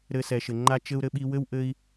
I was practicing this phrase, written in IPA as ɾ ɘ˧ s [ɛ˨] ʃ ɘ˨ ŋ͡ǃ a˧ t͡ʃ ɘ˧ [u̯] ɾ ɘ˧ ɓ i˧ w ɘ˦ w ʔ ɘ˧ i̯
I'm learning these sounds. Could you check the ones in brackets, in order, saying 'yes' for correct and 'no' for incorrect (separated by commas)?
yes, yes